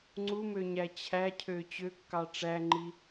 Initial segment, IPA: ŋ͡ǀ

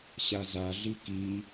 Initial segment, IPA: ɕ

